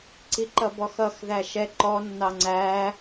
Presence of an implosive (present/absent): absent